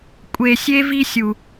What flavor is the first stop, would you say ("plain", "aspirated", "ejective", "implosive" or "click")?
ejective